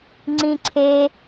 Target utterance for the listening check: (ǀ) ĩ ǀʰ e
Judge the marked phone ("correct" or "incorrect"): incorrect